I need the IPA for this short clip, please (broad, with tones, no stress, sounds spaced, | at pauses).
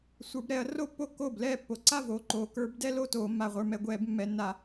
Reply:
sʷ ə˞˩˧ b ɾ ɛ˧˩˧ ɐ̯ r o˥˧ pː o˥˩ kː oː˥˩ b l ɛː˥˩ pː o˩˧ ǀ a˥˧ v oː˩˧ ǃ oː˩˧ k ə˞˧˩˧ b d ɛ˥˧ l o˥˩ t oː˧˩˧ mː a˩˧ ʁʷ ə˞˩˧ m ɛ˩˧ ɡʷ ɛː˧˩˧ b mː ɛ˩˧ nː a˧˩˧